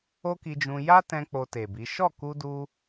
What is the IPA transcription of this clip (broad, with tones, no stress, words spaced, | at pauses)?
o˦ki˧d͡ʒũ˧ ja˦tɛ̃˧ k͡po˧te˨bi˨˦ ʃɔ˦˨ku˧du˧